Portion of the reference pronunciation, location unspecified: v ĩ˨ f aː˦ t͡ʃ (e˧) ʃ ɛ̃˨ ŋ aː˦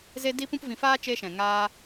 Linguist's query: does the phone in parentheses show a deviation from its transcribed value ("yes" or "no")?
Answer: yes